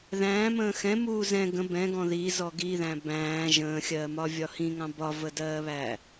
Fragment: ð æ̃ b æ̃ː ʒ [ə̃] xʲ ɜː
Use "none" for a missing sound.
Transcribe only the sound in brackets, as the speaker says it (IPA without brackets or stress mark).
ə̃ː